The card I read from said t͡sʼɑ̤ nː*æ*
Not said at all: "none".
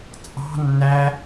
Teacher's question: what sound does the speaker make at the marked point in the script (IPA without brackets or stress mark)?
æ